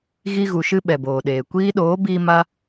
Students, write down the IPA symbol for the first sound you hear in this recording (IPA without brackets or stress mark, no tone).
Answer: ɣ